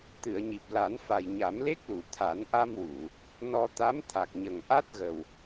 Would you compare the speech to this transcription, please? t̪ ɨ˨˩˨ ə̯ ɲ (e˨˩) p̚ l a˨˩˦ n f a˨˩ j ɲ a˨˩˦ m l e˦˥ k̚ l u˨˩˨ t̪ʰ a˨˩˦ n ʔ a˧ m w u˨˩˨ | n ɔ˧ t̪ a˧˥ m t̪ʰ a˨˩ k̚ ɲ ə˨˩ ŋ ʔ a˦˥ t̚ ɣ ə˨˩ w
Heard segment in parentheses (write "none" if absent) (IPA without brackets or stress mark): i˨˩